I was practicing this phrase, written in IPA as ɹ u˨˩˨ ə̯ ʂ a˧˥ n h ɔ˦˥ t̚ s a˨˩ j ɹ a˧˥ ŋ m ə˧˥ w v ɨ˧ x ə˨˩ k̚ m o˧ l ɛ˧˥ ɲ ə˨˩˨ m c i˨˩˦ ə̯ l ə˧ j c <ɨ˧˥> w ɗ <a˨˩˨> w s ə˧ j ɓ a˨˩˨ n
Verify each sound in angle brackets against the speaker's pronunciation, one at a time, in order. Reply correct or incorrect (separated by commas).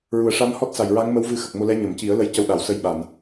incorrect, correct